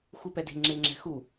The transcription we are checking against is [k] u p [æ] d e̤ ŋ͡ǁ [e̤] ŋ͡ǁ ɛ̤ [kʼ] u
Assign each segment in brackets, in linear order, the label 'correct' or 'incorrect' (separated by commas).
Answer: incorrect, incorrect, incorrect, incorrect